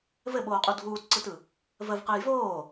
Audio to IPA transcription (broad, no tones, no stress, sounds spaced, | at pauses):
v ɘ ɓ oː qʼ u dʱ uː t ǀ ɯ t ɯ | v ə v q ɛ j v oː